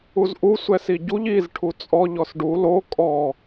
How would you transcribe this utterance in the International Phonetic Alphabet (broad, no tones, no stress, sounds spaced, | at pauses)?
u z ʔ u sʷ ɛ s i ɟ u ʎ i z ʈʰ u t͡sʼ ɔ ʎ ɔ s ɖ u l o kʼ ɔ